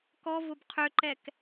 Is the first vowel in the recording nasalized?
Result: no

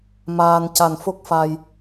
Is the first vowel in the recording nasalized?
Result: no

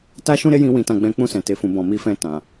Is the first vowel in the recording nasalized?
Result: no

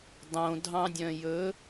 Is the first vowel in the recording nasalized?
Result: yes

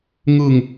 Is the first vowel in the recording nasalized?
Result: no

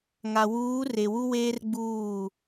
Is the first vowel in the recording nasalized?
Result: no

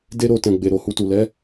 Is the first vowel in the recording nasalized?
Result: no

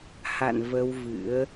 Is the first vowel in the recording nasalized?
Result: no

